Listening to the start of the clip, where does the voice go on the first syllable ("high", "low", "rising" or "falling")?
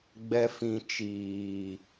low